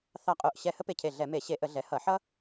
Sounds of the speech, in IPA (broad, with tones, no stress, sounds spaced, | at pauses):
θ ɑ˧˩ qʼ o˧˩ ʔ ɕ ɛ˧˩ h ə˥ p e˧˩ cʰ e˧˩ ɮ ɛ˧˩˧ m e˧˩˧ ɕ e˧˩˧ ʔ ə˧˩˧ ɮ ɛ˩˧ h ʌ˧˩˧ ħ ʌ˥